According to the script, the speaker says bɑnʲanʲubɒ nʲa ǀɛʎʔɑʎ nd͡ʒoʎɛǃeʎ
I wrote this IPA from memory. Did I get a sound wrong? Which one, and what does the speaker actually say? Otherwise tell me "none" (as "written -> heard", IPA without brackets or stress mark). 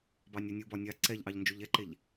none